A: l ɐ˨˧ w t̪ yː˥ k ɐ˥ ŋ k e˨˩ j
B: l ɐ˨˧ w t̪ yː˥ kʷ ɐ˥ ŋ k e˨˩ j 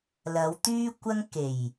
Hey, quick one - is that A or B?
B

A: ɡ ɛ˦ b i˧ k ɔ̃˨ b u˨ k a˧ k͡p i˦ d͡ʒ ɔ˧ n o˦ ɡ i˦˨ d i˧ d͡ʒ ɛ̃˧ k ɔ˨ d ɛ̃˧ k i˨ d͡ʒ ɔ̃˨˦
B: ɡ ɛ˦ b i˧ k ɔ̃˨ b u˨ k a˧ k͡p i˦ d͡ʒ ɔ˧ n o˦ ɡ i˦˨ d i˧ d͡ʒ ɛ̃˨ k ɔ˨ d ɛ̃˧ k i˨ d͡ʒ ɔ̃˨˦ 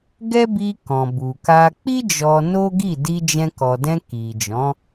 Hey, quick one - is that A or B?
A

